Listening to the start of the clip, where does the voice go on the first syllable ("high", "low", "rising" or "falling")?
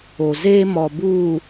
low